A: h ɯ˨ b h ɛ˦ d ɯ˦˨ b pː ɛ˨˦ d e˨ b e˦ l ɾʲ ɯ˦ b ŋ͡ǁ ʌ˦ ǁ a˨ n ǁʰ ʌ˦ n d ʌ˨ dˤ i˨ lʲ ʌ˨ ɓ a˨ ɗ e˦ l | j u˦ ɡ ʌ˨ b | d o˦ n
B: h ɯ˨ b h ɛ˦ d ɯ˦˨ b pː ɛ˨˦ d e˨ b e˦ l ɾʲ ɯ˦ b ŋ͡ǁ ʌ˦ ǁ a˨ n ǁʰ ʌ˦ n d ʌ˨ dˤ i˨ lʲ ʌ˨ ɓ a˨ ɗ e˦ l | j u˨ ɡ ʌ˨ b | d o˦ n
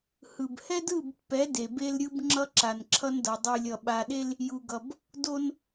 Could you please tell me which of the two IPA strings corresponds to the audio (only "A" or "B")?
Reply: B